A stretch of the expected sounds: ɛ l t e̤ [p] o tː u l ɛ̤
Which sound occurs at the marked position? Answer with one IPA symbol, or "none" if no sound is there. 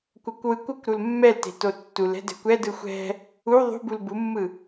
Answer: t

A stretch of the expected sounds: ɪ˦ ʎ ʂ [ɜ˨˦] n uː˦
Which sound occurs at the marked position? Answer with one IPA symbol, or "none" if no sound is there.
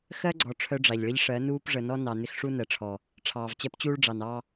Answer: ɜ˨˦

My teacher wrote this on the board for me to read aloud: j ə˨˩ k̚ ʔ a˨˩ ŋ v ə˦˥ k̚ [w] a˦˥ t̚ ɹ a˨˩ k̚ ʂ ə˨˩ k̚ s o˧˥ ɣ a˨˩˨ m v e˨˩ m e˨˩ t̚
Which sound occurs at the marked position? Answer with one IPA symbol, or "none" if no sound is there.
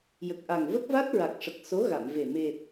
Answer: v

